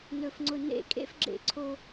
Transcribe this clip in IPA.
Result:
n ɵ˨ f ŋ͡ǀ ʊ˨ n ḛ˦˨ kʼ ḛ˦ f ɡ͡ǁ ḛ˨ ǀʰ o˦

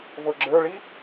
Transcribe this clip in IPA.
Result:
v ɤ ɡ͡ǁ ə˞ ɭ i

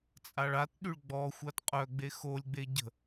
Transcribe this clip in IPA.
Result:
t͡sʼ a ɭ a t ɗ y ɭ ɡ͡b ɔ xʷ a t qʼ œ ɡ͡b e x o lʲ ɡ͡b e ɟ ə̤

